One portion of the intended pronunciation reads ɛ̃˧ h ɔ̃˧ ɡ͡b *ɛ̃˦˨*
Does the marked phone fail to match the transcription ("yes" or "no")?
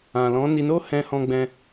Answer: yes